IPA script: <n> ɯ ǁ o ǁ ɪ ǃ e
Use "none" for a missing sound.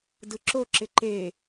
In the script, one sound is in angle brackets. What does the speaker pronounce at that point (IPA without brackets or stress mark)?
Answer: d